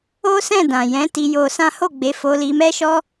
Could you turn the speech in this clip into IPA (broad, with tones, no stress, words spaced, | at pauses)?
o˦ sɛ̃˦˨dã˨jɛ̃˨˦ ti˧jo˧sã˦ ho˦˨ɡ͡be˨˦ fo˧li˧ mɛ˦ʃɔ˦